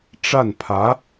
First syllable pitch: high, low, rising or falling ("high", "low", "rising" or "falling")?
falling